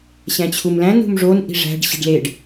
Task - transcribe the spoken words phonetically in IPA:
ɕ æ̃ t͡ɕʰ u m l æ̃ n ṳ m ʐ o n ʔ i̤ ʐ æ̤ ɖ ɕ i̤ ɖ l e ɖ

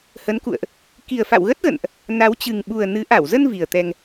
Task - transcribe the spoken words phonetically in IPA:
h ə˨˦ n k ṵ˧˨ ə̯ ʔ | k i˨˩ ə̯ f a̰˧˨ w ɣ ə˦˥ t̚ ɣ ə̰˧˨ n ʔ | n a˨˦ w t͡ɕ ɨ˨˩ ŋ ɓ u˨˩ ə̯ n ɨ˨˦ ʔ a˧˩ w z ə˧ n v i˨˩ ə̯ t̪ ɛ˧ ŋ

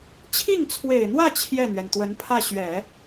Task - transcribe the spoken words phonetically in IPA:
t͡ɕʰ i˥˩ ŋ t͡sʰ w e˨˩ ɪ̯ n̪ w ä˥˧ t͡ɕʰ j ɛ˥˩ n̪ ɥ ɛ˩ n t̪ w ə˧˥ n pʰ ä˥˩ ɕ ɥ ɛ˨˩˦

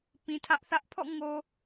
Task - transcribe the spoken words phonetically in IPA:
p ĩ˨ tʰ ä˦ ʔ θ ä˦ ʔ pʰ ɔ̰˦˨ ŋ o˨

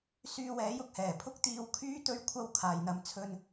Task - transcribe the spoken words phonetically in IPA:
s yː˧ w ɛː˨˥ j ʊ˧ k̚ h ɛː˨˩ pʰ ʊ˥ k̚ t̪ iː˨˧ w kʰ yː˥ t̪ ɵ˥ ɥ kʷʰ ɐ˥ w kʰ aː˨ j n̪ ɐ˧ m t͡sʰ ɵ˧ n

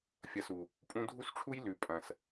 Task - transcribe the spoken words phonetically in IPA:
fʲ ɐ˧ s u˨ | pʼ ũ˧ dʱ u˦ s ʈ͡ʂʰ u˦ j l ʉ˨ pʼ ɐ̃˨ s

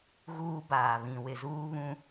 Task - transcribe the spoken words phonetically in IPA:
ɣ uː˦ b aː˨ β ĩ˨ w ɪ˨ z uː˦ β ũ˦

